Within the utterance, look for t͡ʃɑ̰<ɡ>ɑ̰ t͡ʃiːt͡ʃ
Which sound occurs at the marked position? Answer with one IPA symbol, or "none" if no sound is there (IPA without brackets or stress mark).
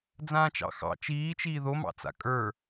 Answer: x